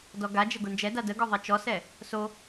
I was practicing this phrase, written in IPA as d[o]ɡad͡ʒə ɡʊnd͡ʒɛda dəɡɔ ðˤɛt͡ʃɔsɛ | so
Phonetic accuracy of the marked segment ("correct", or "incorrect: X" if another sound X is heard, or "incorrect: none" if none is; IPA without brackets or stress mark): incorrect: ɔ